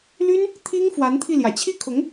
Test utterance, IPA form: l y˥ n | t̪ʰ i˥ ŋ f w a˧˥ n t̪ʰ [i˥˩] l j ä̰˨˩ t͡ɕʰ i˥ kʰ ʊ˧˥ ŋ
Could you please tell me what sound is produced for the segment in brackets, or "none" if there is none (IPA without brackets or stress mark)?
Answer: i˥˩